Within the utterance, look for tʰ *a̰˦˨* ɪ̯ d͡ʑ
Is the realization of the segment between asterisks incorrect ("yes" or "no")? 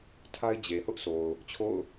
yes